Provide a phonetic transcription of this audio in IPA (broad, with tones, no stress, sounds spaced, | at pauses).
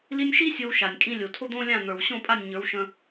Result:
l i˧ nʲ ʃ i˦ sʲ o˧ w ʃ a˨ nʲ kʼ ĩ˧ lʲ o˨ tʰ o˦ d̪ õː˦ lʲ ã˦˨ n̪ ə˞˨ w ɕ õ˦˨ pʼ a˦˨ nʲ ɲ ə˞˨˦ w ʃ ə̃˧